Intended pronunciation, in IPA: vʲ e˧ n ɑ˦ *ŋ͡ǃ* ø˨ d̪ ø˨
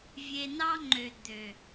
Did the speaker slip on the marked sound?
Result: no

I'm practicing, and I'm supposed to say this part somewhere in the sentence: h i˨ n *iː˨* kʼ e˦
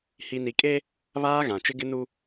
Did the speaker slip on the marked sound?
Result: yes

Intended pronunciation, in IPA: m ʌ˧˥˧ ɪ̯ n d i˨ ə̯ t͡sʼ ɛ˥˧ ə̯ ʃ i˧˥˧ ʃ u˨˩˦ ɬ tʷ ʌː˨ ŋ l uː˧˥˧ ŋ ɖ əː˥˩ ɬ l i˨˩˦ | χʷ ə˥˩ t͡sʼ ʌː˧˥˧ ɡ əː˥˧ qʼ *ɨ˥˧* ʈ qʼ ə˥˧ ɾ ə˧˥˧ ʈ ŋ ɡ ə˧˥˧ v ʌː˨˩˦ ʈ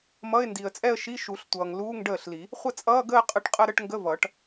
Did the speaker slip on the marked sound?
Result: yes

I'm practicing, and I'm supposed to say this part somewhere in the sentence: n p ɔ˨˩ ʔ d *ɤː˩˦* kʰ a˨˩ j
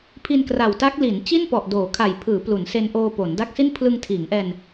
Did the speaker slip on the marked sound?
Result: yes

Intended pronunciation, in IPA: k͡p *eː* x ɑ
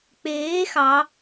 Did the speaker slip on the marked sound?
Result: no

